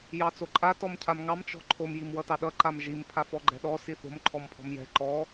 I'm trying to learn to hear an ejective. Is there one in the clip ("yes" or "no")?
yes